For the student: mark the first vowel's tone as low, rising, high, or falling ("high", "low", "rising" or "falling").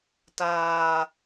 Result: low